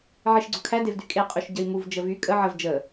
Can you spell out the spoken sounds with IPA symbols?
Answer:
ʕeʃɡ͡ǀʊkʰædev dykʼeqʼyʃ ɟəi̯muvd͡ʒə vy kʼə ʕəv d͡ʒə

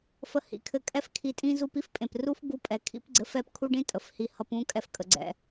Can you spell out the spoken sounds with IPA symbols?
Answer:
fə˨ hḭ˨kʰɘ˧ kʼɛ˧fkʰi˨tʼĩ˧ zu˧p i˦fpʼẽ˨pru˦f ɡu˧pʼɛ˨ kʰḭ˦p ɡ͡ǀɘ˨˦fɛ˦˨pkʰu˦ɖĩ˦ tʼə˨fhi˧ hʌ˧pũ˦kʼɛ˧f kʼə˧ɡ͡ǀɛ̰˦

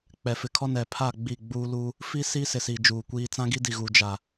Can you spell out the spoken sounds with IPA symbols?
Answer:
k͡pɛ˨fɪ˨kʰɔ˦nɛ˨ pʰa˦˨ ɡ͡bi˦˨ɡ͡buː˦ lu˦ | fi˦ siː˦ sɪ˨siː˨ d͡ʒuː˨kʷiː˦ t͡sã˦ɡi˦di˨ ɣu˨d͡ʒa˨

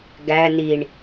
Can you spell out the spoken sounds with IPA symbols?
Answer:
ɡæ niɳ

